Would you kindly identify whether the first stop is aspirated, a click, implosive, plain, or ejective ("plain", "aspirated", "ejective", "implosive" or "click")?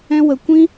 plain